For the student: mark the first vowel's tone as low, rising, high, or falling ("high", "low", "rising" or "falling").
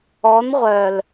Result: rising